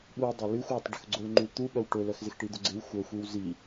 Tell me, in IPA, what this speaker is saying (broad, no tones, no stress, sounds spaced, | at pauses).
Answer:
ɓ u dˤ ɛ l y xʷ j œ tˤ ɖ ʊ x ɡ͡ǀ ʊ l ŋ͡ǃ y l t̪ u ɓ œ w ʈ ʊ l œ x z ɪ x ʈ i d̪ ʊ ɡ͡ǀ ɪ w xʷ œ xʷ i w z i